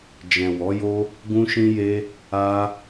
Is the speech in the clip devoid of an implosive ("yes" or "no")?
yes